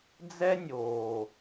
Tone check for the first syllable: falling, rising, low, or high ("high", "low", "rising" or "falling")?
high